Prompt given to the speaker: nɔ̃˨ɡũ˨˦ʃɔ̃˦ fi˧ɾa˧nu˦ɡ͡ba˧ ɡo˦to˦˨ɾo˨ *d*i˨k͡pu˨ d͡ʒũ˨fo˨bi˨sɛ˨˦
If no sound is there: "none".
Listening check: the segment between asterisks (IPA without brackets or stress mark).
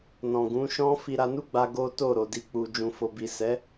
d